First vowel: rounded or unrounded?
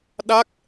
unrounded